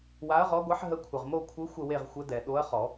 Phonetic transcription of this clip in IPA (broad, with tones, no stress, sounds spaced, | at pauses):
w a˧˥ ɐ̯ ʁ ɔ˧˥ ɡʷ ɛ˧˥ ħ ɦ ə˧˥ kʷʰ ə˨ ʁ m o˥˧ kʷʰ ɯ˧˥ xʷ ə˥˧ w e˥˧ ʁ xʷ ə˧˥ d ɛ˨ ɗ o˧˥ ɐ̯ χ ɔ˨˩˦